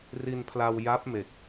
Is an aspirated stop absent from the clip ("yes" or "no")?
no